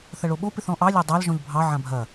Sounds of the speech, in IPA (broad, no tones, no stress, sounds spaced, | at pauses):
θ ɐ ɭ o ɓ o p ɪ θ ɔ̃ ʔ ɑ lʲ ɐ dˤ ɑ l ʒ ɔ̃ ʎ bʱ ɑ ʕ ã bʱ ɐ